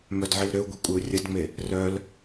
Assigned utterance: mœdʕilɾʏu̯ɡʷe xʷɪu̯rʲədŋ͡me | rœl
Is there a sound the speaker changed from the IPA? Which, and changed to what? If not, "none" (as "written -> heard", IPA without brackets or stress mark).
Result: xʷ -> kʷʼ